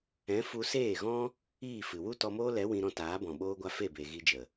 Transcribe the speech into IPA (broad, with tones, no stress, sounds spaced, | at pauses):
ɛ̃˨˦ f u˧ s eː˦˨ ɣ ɔ̃˦ | iː˦˨ f ɨ˨ w u˦ t ɔ˧ m oː˦ l ɛ˨˦ w ĩ˧ ɾ ɔ̃˧ t aː˨˦ b ɔ̃˨ ɓ oː˧ ɡʷ a˧ f e˦˨ b e˨ ɣ i˧ d͡ʒ ə˨